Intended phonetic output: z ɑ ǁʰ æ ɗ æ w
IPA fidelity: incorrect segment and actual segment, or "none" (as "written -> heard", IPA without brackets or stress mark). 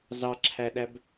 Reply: w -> b